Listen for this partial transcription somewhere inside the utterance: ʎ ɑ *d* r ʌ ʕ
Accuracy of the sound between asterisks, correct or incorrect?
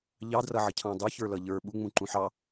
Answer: correct